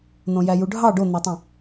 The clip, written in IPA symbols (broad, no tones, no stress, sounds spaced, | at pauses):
n̪ õ j æ j u ɖʱ ɑ ɖ o n̪ æ tˤ ĩ